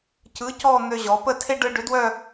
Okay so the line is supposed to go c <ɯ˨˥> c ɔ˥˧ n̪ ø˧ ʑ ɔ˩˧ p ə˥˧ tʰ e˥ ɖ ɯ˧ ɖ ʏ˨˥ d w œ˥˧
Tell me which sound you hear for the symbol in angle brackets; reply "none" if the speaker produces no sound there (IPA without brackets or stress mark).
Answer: ɯ˨˥